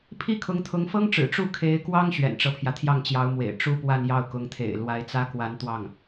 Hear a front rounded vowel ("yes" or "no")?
no